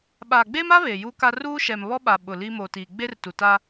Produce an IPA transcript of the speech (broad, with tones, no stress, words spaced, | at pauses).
ɓaː˨ɡ͡beː˦ma˦ βe˨ju˦ka˦ ruː˦ʃɛ˨mβɔ˦ɓa˨ ɓʊ˨ li˦mo˨tiː˨ ɡ͡be˦rtu˨ta˦